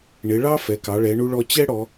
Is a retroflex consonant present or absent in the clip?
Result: present